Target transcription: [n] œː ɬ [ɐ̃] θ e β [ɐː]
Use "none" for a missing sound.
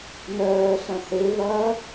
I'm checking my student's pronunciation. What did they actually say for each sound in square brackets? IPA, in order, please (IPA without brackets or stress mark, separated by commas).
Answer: n, ɐ̃, ɐː